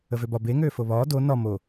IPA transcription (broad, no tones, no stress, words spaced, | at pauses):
əvøbɒ be ŋøːfoβɒː do nɒ mo